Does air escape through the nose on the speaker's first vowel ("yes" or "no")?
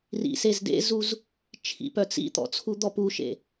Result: no